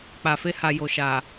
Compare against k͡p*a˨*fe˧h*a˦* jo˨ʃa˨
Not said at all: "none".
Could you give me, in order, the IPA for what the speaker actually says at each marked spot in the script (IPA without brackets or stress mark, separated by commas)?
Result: a˨, a˨